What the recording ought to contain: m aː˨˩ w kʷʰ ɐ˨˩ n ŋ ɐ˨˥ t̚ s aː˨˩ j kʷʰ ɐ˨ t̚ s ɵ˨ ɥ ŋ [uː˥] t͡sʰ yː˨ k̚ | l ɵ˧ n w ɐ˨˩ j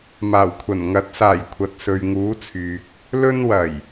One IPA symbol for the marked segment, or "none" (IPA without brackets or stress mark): uː˨˥